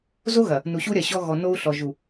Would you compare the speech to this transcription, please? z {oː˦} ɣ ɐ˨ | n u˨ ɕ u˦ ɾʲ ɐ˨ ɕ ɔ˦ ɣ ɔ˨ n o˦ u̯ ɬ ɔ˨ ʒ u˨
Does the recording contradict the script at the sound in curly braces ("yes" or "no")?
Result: yes